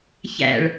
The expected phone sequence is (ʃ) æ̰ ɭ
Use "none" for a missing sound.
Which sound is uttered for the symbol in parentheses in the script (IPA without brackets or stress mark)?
ç